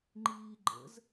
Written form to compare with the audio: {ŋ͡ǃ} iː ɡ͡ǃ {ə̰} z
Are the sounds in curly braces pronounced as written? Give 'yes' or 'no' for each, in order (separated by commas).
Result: yes, yes